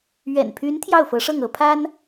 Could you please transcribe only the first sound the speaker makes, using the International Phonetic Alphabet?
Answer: ɥ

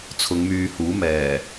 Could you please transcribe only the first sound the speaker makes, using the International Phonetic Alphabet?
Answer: t͡sʰ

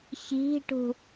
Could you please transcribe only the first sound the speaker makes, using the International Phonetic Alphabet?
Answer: ç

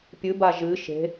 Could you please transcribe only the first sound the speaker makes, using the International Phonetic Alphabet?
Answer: pʲ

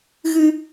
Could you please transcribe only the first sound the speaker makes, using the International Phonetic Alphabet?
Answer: ɣ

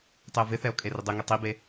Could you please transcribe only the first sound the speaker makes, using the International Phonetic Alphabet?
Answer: tˤ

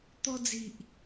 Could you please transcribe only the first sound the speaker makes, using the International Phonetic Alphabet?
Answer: t̪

